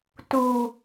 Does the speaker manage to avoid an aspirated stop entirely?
yes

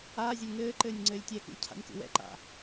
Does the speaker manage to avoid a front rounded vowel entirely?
yes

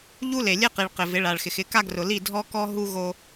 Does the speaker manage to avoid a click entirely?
yes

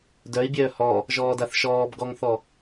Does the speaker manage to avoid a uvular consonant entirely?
yes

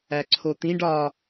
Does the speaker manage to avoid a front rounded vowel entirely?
yes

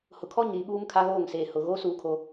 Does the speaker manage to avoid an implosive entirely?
no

